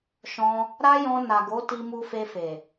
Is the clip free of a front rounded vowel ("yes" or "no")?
yes